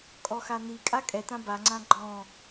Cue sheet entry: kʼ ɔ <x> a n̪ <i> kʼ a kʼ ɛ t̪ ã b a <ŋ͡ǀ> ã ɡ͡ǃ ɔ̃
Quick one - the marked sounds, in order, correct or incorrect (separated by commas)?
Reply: correct, correct, correct